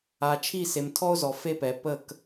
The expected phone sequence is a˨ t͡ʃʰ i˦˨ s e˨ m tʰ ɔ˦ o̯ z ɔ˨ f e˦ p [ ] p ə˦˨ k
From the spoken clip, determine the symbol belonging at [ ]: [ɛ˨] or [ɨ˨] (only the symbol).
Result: ɛ˨